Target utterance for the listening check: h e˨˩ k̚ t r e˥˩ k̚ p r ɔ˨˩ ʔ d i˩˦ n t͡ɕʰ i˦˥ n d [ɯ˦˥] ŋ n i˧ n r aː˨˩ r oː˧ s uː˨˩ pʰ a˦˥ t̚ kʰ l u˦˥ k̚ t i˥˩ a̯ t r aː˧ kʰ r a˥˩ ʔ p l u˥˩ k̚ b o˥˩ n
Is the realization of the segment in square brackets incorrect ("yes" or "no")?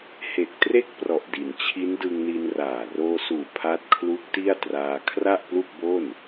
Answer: yes